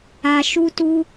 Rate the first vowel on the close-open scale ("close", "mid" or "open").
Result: open